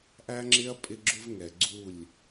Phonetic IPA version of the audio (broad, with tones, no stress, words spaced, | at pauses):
ʔæ˦ŋ͡ǁɪ˦ɐ̯ pʼɪ˦ɡ͡ǁʊ˦vŋɛ˨ ɡ͡ǀu˦˨lʲ